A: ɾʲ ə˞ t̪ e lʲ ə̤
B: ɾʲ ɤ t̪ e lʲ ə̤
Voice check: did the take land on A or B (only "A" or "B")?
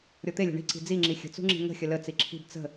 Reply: B